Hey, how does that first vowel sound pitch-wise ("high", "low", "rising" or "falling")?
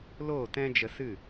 falling